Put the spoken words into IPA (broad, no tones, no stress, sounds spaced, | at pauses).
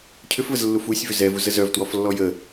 cʰ ʏ f v ə z lː u f u sʲ v ʏ z ɛ v u z ə z œ v t w ɔ f lː ɔ j ə